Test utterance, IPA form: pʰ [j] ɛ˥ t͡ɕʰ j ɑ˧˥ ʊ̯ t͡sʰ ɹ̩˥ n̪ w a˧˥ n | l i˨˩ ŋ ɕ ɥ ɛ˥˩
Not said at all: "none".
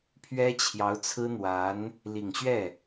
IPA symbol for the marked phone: ɥ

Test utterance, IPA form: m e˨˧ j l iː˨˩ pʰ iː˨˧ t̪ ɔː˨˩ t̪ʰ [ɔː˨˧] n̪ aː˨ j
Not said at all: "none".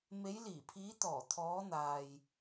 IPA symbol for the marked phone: ɔː˨˧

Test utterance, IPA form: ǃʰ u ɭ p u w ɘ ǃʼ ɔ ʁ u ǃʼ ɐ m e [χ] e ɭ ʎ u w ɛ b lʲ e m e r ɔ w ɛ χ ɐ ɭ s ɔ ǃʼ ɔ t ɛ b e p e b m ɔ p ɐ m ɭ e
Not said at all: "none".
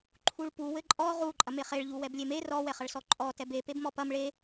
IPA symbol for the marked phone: χ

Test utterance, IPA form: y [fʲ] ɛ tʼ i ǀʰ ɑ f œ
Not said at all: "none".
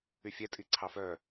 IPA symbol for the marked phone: fʲ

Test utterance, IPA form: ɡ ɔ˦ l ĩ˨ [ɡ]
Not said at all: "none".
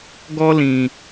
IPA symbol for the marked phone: none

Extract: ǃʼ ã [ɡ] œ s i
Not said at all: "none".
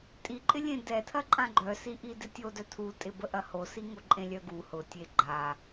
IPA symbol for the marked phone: ɡ͡ǃ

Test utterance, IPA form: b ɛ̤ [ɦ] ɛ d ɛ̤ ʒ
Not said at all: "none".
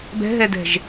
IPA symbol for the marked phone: ɦ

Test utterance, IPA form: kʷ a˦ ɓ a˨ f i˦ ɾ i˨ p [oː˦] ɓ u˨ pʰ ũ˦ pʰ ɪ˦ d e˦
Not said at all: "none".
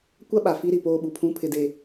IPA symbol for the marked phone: oː˦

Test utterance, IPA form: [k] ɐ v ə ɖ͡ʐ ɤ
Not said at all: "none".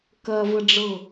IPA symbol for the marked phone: k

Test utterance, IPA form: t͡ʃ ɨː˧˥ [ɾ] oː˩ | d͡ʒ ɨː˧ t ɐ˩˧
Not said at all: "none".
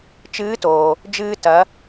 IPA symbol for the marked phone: t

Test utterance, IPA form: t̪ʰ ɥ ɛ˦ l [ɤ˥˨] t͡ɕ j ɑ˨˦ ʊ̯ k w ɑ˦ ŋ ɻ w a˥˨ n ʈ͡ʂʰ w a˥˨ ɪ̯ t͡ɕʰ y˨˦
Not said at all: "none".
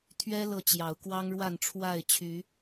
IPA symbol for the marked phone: ɤ˥˨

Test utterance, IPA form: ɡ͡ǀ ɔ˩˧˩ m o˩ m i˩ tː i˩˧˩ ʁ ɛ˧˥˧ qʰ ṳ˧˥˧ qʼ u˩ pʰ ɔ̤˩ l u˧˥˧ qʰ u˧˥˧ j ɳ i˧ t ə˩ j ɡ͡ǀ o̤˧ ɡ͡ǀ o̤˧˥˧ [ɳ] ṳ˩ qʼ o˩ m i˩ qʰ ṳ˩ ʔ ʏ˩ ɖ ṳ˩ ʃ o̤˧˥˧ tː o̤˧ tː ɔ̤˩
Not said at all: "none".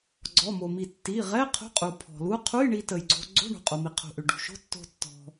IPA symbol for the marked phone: ɳ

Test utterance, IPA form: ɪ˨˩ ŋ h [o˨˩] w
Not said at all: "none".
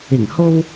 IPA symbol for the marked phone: o˧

